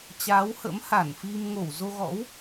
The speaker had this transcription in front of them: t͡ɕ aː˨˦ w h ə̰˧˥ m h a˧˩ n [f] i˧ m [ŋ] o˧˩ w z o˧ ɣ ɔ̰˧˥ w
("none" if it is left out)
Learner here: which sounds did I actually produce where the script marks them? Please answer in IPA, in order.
f, ŋ

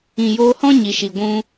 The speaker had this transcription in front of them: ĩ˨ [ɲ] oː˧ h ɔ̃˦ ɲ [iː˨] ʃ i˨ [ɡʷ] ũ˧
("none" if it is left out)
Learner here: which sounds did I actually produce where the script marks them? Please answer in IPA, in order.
j, i˨, ɡʷ

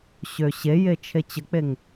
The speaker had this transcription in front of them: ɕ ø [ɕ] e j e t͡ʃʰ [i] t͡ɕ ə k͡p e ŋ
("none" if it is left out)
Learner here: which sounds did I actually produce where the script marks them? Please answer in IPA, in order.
ɕ, e

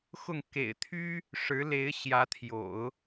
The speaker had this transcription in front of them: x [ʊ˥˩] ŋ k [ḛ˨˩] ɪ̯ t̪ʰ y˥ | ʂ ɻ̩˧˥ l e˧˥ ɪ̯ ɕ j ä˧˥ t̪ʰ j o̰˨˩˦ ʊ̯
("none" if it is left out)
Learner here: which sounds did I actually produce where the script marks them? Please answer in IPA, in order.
ʊ˥˩, ḛ˨˩

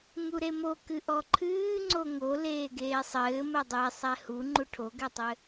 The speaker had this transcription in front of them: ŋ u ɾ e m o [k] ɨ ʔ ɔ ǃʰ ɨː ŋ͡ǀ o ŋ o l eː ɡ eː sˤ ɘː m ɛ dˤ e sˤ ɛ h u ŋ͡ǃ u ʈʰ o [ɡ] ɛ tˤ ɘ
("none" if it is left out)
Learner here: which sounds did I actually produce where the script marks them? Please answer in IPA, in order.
k, ɡ

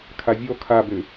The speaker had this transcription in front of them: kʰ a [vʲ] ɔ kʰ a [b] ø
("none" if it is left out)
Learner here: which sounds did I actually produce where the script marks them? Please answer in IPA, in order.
vʲ, b

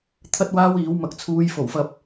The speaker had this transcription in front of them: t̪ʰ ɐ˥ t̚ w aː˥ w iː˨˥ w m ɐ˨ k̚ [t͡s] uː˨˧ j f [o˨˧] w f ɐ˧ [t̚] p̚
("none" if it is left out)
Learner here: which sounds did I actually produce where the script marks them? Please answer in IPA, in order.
t͡sʰ, o˨˩, none

